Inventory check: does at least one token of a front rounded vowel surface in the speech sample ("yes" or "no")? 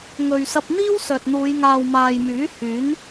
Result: yes